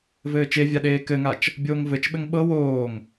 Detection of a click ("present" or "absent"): absent